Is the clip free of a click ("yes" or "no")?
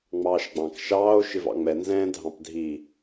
yes